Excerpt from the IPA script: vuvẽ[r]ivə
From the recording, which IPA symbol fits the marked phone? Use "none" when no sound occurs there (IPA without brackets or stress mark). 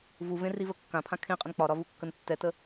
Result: r